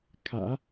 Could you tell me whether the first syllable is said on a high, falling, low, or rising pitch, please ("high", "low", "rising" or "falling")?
low